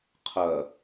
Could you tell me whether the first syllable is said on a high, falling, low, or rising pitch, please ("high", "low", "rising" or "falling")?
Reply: low